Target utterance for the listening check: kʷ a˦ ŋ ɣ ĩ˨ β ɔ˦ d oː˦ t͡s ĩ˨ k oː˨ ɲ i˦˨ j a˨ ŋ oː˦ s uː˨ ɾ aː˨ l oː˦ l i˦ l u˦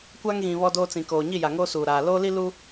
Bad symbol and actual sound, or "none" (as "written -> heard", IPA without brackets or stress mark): none